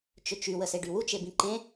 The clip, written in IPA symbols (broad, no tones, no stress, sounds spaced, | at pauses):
t͡ʃ ø t͡ʃ y w ə s e ɖ y w u t͡ʃ e b ĩ ǃ ẽ